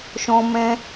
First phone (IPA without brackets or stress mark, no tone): ʃ